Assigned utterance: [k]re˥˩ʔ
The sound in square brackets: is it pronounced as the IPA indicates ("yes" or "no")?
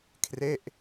no